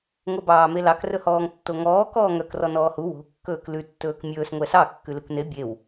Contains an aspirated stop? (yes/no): no